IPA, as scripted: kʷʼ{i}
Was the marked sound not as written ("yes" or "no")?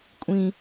yes